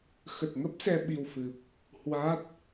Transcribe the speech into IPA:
x ə˨˩ t̚ ŋ ə˦˥ p̚ s ɛ˧ ɓ i˧ w f ɨ˨˩ p̚ | h w a˦˥ t̚

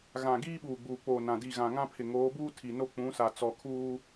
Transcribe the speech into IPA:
ɣ ã˨ ɡ iː˦ ɓ uː˨ ɡ͡b uː˨ k͡p oː˨ n ã˨ d i˦˨ ɣ ã˨ ŋ ã˦ pʰ ɪ˨ ŋ oː˨˦ b uː˦ tʰ i˨ n o˦ k͡p ũ˨˦ s a˨ t͡s ɔ˨ kʰ uː˦

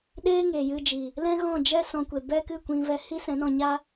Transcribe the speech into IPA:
ɗ eː˦ ŋ eː˨ j ɨ˧ d͡ʒ i˨ | l ɛ̃˦ ɣ ɔ̃˦˨ d͡ʒ ɛ˦ s ɔ̃˧ kʷ e˨ b ɛ˦ k ɨ˦˨ kʷ ĩ˧ v ɛ˧ h i˦ s ɛ̃˨˦ n ɔ̃˧ ɲ a˦

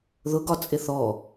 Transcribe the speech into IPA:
ð ʊ ɡ ɒ t͡sʼ ɪ θ ɔ

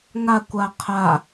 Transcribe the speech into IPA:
ŋ a kʷ a qʰ a

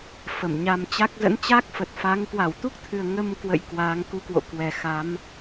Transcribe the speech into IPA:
f ə˧˩ m ɲ a˧ m t͡ɕ a˦˥ k̚ z ə̰˧˥ n t͡ɕ a˦˥ k̚ f ə˨˩ t̚ f a˨˦ ŋ k w a˧˩ w t̪ u˦˥ k̚ t̪ʰ ɨ˨˩ ə̯ ŋ ə˧ m k w ə̰˧˨ j k w aː˨˦ ŋ k u˧ k w o̰˧˨ k w ɛ˨˩ x a˨˦ m

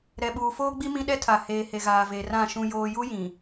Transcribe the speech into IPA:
ɾ ɛ˨ ɓ uː˨ f oː˦ ɡ͡b i˦ m ĩ˦ ɗ ɛ˦ tʰ a˨ h eː˨ h e˨ ɣ aː˨ v e˨ r ã˦˨ ʃ ũ˦ j oː˦ j u˦ j ĩ˨

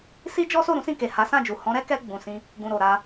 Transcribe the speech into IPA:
s i˦ d͡ʒ ɔ˦ s o˦˨ ɾ ũ˨˦ s ĩ˦˨ k e˨ h a˨˦ s ã˦˨ d͡ʒ u˨ h ɔ̃˨˦ ɾ ɛ˦ k ɛ˧ ɡ͡b ũ˨ s ĩ˧ | ɡ ũ˨ ɾ o˨ ɾ a˧

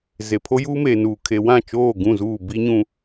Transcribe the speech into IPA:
z e˨ pʰ o˦ j uː˦ m eː˨ n uː˨ kʰ e˨ w ã˦˨ t͡ʃ oː˦˨ ɡ ũ˦˨ z uː˦˨ b i˦ ɲ ũ˦

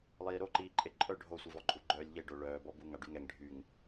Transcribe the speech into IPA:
lˠ iː ɾ o ǃ iː ǃʼ e ǃʼ œ ɖʱ o sʷ i v ɔ ǃʼ u ɡ͡ǃ œː lʲ ʎ e ɖ o ɭ œː b ɔ b u ŋ a ɖ y ŋ ɛ ŋ ɖʱ y ŋ

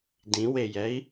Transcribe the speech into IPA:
d ĩ w e j ɛ i̯

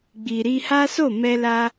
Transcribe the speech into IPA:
ɡ͡b i˨ ɾ i˧ h a˦ s o˦˨ m ɛ˧ l a˧

